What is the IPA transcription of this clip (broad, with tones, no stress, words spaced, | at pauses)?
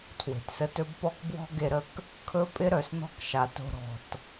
tʰwe̤˨tsə˧tɵ˦b pɔ˦kbwɔ̤˦ ɡe˧ɾə˦˨k | kʰɵ˦pʼɪ˦ ɾœ˨sn̪ɔ̤˦k ʃa˨to̤˧ ɾɔ̤˨t